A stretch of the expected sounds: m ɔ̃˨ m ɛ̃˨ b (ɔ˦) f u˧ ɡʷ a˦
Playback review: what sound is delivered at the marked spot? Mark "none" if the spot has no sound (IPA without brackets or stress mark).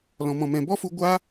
ɔ˦